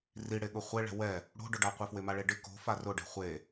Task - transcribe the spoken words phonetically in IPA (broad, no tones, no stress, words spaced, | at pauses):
riɽeɠʊ χʷeɭɛ̤ wɛ | ɽo̤ɖʊɖaqʷɪ fwɪmaɭeɖɪ ko̤fa rʊɖɛ̤ χʷe